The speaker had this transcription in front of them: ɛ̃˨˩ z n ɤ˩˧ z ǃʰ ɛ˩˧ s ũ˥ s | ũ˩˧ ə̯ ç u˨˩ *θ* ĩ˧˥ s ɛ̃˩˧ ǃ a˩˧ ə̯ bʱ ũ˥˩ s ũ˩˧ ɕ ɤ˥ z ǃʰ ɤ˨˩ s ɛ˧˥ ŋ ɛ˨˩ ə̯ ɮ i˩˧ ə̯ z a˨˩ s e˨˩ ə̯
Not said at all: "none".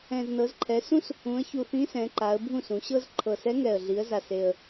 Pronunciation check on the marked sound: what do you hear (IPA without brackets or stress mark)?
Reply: θ